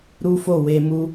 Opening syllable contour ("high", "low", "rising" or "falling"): high